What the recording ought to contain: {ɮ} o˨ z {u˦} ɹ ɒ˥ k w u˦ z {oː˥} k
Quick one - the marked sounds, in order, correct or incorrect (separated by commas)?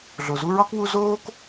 correct, correct, correct